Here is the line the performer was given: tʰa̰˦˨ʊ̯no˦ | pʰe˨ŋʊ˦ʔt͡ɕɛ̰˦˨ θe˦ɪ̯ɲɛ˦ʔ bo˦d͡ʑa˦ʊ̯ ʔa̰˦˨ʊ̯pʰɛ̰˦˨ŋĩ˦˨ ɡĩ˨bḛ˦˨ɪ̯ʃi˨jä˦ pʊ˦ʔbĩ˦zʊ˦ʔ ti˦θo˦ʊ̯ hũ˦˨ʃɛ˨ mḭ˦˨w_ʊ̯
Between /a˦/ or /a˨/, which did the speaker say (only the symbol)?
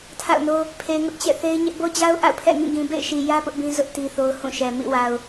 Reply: a˨